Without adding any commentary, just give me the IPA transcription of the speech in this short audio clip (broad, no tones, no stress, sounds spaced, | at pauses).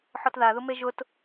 ħ ɔ t ð a ð ʊ m e ʒ ʊ t